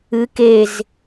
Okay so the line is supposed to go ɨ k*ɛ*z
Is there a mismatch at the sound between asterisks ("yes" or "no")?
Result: yes